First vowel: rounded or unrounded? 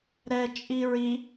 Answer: unrounded